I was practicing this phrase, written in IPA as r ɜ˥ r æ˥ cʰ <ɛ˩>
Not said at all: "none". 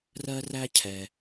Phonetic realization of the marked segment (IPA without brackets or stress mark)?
ɛ˩